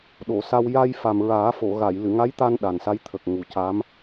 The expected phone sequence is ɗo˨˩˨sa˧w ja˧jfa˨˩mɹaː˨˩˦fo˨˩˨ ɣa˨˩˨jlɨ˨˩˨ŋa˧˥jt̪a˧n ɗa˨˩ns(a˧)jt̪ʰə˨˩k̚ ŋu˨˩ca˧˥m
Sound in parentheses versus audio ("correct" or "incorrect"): incorrect